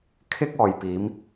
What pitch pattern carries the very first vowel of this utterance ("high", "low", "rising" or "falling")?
high